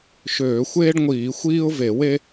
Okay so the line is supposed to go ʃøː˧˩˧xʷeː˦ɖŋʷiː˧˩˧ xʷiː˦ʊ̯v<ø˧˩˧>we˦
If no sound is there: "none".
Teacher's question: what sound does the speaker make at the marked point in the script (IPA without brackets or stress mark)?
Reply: e˧˩˧